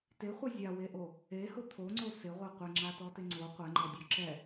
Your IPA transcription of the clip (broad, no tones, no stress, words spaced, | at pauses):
teχʷɛ zʲaweʔo | ehʊ t̪ʰoŋ͡ǀo sɪʁʷɛ qʷɪŋ͡ǁatɔtɪ ŋ͡ǀo qʷɛŋ͡ǃɔdʲɔ ǁɛ